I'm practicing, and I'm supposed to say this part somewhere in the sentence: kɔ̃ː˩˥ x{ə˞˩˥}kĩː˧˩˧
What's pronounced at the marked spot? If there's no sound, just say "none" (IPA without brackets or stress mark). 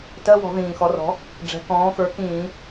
ə˞˩˥